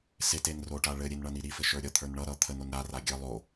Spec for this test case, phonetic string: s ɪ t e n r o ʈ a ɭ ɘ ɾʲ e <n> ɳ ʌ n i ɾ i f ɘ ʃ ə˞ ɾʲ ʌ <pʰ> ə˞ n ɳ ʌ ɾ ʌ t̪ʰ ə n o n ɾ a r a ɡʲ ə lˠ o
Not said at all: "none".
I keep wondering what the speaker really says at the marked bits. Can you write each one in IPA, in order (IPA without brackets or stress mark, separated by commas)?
n, t̪ʰ